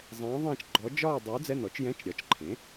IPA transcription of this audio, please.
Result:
zˤ ɛ̃ː˧˥ ðˤ ẽː˥˧ t͡ʃ ɡ͡ǃ ɔ˧˥ d͡ʒ ɒː˥˧ dˤ uː˧˥ d͡z ɛ˧˥˧ n ɔ˩˥ t͡ʃ j ɛ̃˧˥˧ t͡ʃ ɾʲ ɒ˩˥ t͡ʃ ǃʰ ẽ˩˥

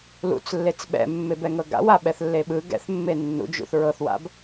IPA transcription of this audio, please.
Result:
l ṵ t͡s lː e t͡s ɓ ɛ̰ mː e b ɛ ŋ ɤ ɡ a̰ w a ɓ ɛ θ lː e ɓ ɯ ɡ ɛ̰ θ mː e nː ṵ d͡ʒ ṵ θ ɹ ɤ θ w a̰ b

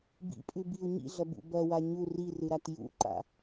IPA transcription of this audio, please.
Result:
b ḭ pʼ ʉ b i u̯ ɲ ḭ ɮ ɐ b ṵ b ɐ w a ɲ u r i r ɨ ɾ a t j ṵ ǃ a̰

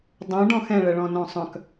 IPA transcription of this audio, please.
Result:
dˤ õ ɖ ɔ̃ x ɛ̃ ɭ ɛ ɭ ɔ̃ n ɔ̃ sˤ œ̃ k

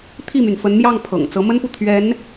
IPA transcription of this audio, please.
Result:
t̪ʰ i˥˩ m y˩ n f ə˧˥ n m j ɑ˥˩ ŋ pʰ ɤ̰˨˩ ŋ t͡s ɤ˧˥ m ə˥ n p u˨ t̪ʰ ɥ ɛ˧˥ n

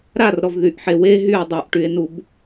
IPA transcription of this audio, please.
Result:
ɾ a r ɾ ɔ v ð y ʔ ħ e w e ɦ y e̯ dˤ œ ʔ ʈ y e̯ n u b

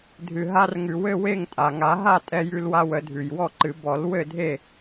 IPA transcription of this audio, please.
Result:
dʱ ɨ˩ ɦ a˧ r ŋ ʉ˩ w ɘ˥˨ w e˥˨ ŋ tʼ a˩ ŋ a˨˩˦ ɦ a˥˨ tʼ ɛ˧ j ʉ˧ l w a˧ w ə˨˩˦ dʱ ʉ˩ j w ɔ˥˨ ǃ ɨ˨˩˦ b ɔ˨˩˦ l w ɘ˥˨ dʱ e˥˨

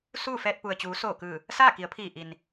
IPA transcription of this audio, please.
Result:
s uː˥˨ f ɛː˧ t̚ p u˩ ə̯ t͡ɕ uː˩˧ s oː˧˩ k ɯː˧˩ | s aː˥˨ k i˩˧ ə̯ pʰ iː˧˩ ʔ i˩ n

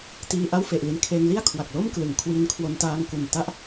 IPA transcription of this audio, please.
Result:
t iː˧ ʔ a˥˩ w f e˨˩ ʔ l i˧ n kʰ eː˧ ŋ l i˥˩ a̯ kʰ w a˨˩ k̚ l o˥˩ m k l ɯ˩˦ ŋ kʰ w i˧ n kʰ w o˧ n t aː˧ ŋ k u˨˩ n t a˥˩ ʔ

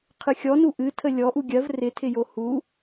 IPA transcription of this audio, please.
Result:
qʰ ɨ xʲ ɔ n u ʔ ɨ tʰ ə lʲ ɔ ʔ u ɡʲ ɜ v r ɪ tʰ ɪ j o h u

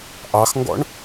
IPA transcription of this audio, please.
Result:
ʔ ɑ x ŋ ɡ ɔ̰ ɳ

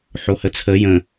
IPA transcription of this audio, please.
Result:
ħ o h ə t͡sʰ ə j ə̃

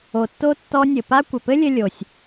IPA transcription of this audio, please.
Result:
o˩ tː o˧ tː ɔ˧ nʲ ɘ˩ p a˥ kʷ ɘ˩ p ɘ˥ lʲ ɘ˧ lʲ o˩ sʲ

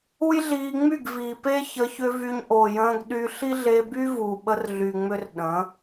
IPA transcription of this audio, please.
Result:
u˦ j ɮ iː˧ ŋ͡m y˦˨ ɡ v iː˨ p e˦ ç ə˧ ç ʏ˦ v y˧ ɲ ʔ o˨ j ə̃ː˧ ɡ ɗ y˧ ɬ i˦ ɮ e˧ b y˦ v u˨ ɓ ə˧ r ɮ y˨ ŋ͡m ʏ˦ r ɗ ə̃ː˨˦

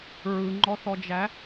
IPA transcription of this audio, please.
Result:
ɹ ɯ ŋ͡ǃ ɔ θ ɔ d͡ʒ æ

